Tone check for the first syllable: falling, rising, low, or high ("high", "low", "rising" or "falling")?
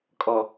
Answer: low